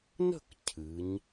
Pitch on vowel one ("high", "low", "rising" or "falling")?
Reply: falling